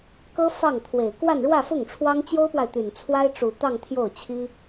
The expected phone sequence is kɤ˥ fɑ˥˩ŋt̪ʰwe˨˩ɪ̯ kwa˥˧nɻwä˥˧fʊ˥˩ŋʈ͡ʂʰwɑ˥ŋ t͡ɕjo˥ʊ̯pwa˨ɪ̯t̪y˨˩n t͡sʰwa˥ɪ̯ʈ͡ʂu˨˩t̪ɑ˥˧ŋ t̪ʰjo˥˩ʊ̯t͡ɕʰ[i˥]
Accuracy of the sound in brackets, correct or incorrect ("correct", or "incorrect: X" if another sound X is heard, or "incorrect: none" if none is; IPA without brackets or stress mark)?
correct